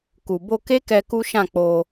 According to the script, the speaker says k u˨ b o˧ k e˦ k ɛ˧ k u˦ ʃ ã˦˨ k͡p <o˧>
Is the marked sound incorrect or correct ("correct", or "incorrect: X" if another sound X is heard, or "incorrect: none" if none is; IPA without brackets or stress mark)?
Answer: correct